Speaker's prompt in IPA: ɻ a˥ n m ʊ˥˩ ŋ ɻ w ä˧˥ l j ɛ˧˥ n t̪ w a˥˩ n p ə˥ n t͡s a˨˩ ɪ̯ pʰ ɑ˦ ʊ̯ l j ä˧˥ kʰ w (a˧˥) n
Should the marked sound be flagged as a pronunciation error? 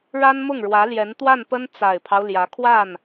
yes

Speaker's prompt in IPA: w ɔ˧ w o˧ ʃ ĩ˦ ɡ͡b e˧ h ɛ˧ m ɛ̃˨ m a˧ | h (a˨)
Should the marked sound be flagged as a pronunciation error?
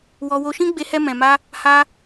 yes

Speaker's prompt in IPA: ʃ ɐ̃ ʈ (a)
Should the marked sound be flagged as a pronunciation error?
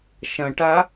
no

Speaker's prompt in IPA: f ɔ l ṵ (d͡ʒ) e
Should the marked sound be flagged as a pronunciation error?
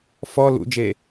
no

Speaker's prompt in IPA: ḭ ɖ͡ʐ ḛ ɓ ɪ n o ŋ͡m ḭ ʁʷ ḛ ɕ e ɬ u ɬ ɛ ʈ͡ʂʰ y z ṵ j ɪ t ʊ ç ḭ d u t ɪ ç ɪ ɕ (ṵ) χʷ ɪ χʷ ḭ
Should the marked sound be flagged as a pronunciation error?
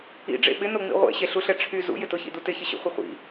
yes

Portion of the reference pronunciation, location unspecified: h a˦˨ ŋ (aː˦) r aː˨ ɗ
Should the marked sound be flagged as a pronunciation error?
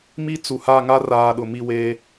yes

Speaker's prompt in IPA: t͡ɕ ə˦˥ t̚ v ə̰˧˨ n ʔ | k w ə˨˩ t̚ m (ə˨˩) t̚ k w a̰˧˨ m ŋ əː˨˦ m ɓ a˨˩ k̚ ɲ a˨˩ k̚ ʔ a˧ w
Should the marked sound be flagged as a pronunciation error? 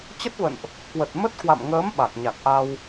yes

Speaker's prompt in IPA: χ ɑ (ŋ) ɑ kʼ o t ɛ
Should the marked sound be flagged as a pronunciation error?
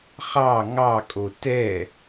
no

